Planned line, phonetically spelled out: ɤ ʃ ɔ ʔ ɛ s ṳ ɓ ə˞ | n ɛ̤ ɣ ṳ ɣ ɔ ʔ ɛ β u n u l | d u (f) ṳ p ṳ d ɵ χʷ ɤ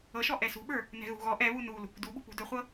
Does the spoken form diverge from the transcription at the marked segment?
yes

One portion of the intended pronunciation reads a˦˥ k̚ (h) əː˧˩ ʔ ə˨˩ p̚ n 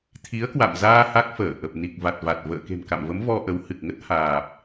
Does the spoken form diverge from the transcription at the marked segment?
yes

